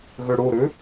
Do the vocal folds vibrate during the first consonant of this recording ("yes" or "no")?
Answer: yes